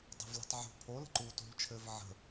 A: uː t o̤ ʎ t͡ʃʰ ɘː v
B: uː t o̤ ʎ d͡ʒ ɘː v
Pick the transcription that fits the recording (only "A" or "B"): A